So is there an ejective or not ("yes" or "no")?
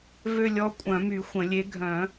yes